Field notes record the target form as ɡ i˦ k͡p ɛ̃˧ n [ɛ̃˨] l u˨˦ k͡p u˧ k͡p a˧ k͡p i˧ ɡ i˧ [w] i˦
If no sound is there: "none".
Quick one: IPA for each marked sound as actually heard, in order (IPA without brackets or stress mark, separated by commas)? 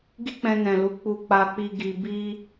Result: ɛ̃˨, b